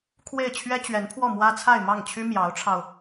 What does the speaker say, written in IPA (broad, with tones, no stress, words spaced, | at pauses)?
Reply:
kʰwe˥˩ɪ̯ t͡ɕʰɥɛ˥t͡ɕɥɛ˧˥npʰwɔ˥˩ mwä˥t͡sʰa˥˧ɪ̯ mɑ˥˩ŋ t͡ɕʰy˥ mjɑ˧˥ʊ̯ʈ͡ʂʰɑ˧ʊ̯